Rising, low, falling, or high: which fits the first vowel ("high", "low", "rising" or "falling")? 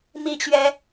falling